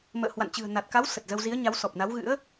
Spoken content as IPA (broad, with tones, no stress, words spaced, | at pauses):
mə̰ː˧˨hwa̰˧˨n t͡ɕɨ̤˨˩ə̯na˨˩t̚ka˨˦w sə˨˩t̚zə˧w zi˨˦ə̯ɲa˨˦wsɔ˨˩p̚na˨˦w ɣɨ̰˧˥ə̯